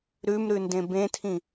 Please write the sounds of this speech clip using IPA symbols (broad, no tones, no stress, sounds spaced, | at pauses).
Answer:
ɾ ʉ m ɾ ʉ n d ẽ b ẽ tʰ ĩ